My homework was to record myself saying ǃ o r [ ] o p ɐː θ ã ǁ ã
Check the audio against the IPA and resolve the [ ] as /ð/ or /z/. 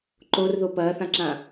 ð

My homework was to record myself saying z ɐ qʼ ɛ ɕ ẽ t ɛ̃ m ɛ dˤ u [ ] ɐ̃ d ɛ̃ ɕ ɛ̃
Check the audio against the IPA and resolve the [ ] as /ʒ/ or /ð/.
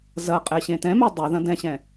ð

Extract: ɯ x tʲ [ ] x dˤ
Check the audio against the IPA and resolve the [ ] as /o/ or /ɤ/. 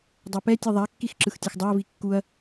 ɤ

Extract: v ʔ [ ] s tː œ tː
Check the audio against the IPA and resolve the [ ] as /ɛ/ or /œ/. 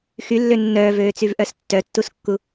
œ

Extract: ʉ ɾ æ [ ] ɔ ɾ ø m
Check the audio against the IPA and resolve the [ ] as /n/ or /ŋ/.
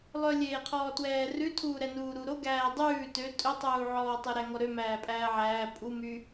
ŋ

